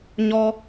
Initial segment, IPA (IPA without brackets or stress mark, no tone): ɲ